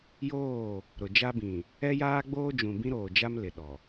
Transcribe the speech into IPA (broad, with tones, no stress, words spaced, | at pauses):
joː˦˨ | ɾʊ˨d͡ʒa˦bĩ˨ | ɛ˦jaː˦ɡ͡boː˦d͡ʒũ˨ bĩ˦ɾoː˨d͡ʒa˦m lɪ˨ɗɔ˨